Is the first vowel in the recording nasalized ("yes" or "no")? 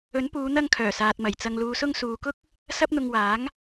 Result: no